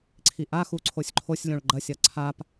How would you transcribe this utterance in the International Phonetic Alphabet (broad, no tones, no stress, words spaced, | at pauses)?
ǀʰiʔaxu ǀʰosʲǃʰosʲlʲõɭ ɡ͡ǃɐsʲɐ ǀʰap